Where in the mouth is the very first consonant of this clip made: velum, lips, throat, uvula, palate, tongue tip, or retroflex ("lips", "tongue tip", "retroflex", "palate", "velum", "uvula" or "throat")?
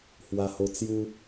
throat